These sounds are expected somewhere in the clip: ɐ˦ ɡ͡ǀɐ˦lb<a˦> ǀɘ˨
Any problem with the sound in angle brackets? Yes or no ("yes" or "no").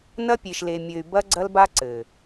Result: no